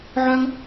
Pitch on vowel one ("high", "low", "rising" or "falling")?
high